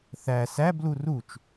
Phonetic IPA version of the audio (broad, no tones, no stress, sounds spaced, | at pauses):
θ æ s æ b l u r u t͡ʃ